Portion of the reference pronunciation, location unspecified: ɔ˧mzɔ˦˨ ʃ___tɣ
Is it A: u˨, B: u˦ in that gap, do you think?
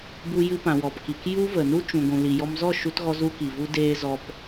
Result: B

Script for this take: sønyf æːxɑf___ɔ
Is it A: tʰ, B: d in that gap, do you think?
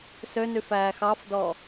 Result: B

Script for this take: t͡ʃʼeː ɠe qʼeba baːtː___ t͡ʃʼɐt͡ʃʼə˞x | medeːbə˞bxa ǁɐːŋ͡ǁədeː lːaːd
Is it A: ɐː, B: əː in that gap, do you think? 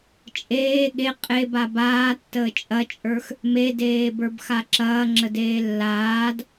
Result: B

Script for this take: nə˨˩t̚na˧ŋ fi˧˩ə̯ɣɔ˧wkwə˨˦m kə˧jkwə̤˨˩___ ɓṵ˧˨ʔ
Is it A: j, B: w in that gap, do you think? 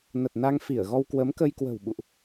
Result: B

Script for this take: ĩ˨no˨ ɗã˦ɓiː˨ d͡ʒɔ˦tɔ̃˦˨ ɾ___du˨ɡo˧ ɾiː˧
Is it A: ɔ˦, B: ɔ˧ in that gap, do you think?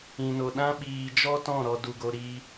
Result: B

